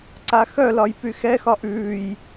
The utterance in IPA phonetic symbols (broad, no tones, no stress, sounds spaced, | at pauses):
ǀ a x œ l ɒ j p y x ɛ x ɒ ʔ ʉː j